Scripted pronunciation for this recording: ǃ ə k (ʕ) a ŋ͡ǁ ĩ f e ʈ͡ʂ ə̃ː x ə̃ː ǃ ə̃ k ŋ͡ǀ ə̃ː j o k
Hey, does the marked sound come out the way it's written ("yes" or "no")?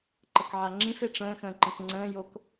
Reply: yes